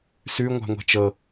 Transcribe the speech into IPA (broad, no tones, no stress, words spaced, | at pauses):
sʉ ŋʷa̤ŋʷɛ̤t͡ʃɤ